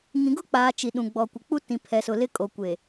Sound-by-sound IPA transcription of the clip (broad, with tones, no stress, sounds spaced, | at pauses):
ŋ ĩ˨ ɡ ʊ˦ k͡p aː˨ t͡ʃ i˨ ɗ ũ˨ ɡ͡b ɔ˨ kʷ ɪ˨ k͡p u˦ t ĩ˨ pʰ ɛ˨ s ʊ˨ l ɪ˦ kʼ o˨ kʷ eː˨